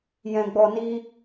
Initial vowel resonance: nasal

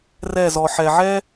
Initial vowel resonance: oral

